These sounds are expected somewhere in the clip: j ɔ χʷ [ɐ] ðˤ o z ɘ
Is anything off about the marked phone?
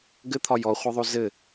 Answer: no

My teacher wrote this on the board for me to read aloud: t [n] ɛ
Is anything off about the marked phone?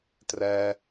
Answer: yes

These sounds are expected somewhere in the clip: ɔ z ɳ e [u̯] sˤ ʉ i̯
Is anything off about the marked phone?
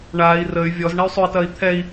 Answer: yes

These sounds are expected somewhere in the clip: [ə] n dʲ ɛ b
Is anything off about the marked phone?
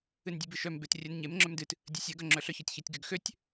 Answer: yes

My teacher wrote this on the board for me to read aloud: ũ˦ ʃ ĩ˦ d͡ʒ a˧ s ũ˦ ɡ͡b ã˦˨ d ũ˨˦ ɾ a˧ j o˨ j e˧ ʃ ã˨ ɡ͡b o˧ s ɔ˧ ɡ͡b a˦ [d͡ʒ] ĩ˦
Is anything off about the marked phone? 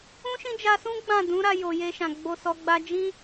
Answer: no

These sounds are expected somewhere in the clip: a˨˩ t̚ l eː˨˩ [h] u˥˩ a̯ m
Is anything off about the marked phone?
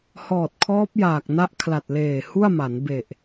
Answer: no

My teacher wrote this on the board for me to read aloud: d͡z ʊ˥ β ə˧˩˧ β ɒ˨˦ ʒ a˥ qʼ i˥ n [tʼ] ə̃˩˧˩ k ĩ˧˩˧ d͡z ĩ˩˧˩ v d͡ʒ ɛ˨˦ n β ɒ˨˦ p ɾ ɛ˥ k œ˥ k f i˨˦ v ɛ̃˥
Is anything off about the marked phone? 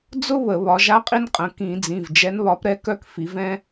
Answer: yes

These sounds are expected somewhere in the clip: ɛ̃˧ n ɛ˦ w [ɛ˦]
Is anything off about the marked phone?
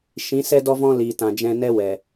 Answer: yes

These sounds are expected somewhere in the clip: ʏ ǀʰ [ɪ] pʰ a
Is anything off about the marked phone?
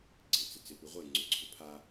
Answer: yes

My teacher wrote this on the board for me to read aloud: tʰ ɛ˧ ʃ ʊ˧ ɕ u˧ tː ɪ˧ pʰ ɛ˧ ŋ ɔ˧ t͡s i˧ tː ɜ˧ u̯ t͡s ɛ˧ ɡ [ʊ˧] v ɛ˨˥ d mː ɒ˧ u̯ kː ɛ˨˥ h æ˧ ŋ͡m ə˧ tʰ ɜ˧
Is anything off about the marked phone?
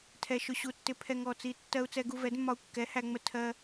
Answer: yes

